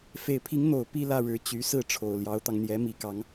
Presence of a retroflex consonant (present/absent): present